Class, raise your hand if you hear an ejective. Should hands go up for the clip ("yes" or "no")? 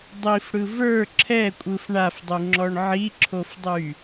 yes